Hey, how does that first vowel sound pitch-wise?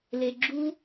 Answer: low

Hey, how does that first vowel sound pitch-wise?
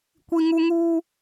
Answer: high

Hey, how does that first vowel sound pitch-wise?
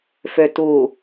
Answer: low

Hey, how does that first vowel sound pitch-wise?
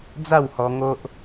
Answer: falling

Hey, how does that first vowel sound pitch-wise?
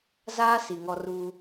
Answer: high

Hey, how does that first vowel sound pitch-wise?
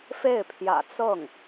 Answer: falling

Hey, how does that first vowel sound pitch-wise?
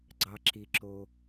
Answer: low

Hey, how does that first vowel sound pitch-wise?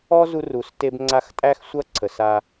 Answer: high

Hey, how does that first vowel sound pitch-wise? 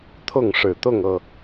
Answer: falling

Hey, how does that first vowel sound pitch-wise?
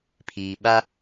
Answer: low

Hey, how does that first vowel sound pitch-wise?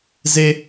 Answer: low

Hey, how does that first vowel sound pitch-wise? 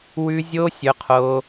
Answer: high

